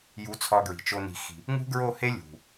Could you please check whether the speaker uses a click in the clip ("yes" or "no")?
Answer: no